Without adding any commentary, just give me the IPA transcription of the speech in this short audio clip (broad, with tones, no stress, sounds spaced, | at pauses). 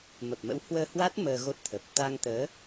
m ə˨˩ p̚ m ə̰˧˥ w h w əː˧ h w a˦˥ t̚ m əː˧ ɣ o˦˥ t̚ t̪ʰ ə˨˩ p̚ t̪ a˧ ŋ t̪ əː˨˦